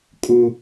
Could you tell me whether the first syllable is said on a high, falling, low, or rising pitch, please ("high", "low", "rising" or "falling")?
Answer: high